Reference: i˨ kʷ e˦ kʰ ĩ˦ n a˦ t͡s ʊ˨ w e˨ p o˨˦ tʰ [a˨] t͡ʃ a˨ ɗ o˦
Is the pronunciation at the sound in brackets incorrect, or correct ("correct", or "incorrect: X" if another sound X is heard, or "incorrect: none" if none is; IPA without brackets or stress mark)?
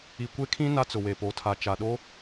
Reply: correct